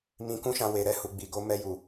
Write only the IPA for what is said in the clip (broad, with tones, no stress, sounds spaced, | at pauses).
m ĩ˧ k ũ˦ ʃ ã˧ w e˨ ɾ ɛ˧ h u˨ ɡ͡b i˨ ɡ o˧ m ɛ˧ j u˨